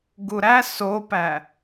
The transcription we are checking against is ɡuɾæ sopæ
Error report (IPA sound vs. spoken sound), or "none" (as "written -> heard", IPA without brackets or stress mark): none